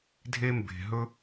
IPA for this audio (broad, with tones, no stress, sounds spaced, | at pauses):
dʱ e˧ m b e̤˨ ɦ ɵ˧